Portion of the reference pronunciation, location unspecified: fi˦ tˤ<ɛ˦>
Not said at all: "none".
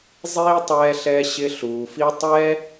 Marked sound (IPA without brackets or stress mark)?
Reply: ɛ˦